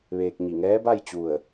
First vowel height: mid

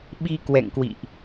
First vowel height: high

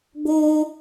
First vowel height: mid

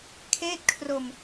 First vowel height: mid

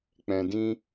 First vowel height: mid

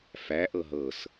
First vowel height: low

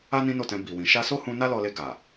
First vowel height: low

